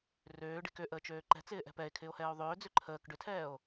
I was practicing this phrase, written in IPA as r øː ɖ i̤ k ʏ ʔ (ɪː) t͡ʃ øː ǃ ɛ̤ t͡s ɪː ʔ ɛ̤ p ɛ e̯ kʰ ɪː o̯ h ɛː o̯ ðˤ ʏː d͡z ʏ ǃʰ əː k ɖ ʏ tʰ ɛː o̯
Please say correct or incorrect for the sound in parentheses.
incorrect